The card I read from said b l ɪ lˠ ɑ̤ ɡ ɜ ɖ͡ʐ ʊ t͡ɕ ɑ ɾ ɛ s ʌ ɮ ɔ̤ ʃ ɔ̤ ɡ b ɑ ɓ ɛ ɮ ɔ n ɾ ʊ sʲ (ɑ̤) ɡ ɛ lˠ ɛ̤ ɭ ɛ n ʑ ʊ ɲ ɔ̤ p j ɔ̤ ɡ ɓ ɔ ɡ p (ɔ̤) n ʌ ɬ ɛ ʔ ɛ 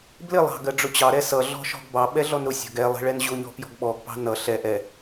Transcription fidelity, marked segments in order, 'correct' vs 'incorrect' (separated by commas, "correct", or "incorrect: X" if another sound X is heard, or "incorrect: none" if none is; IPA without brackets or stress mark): incorrect: ɔ̤, incorrect: ɑ̤